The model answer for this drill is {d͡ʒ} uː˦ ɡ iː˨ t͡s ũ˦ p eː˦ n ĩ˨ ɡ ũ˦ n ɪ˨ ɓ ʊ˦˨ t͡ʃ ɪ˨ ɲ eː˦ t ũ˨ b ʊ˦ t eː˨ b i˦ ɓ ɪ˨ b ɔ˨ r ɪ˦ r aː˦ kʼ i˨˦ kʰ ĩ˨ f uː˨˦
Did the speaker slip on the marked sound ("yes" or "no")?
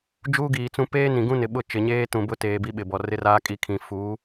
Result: no